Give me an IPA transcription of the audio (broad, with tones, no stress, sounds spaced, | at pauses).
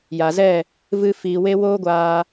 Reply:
j a˨ z ɛ˦˨ | v ɨ˧ f iː˨ w e˧ w oː˦ ɡʷ aː˧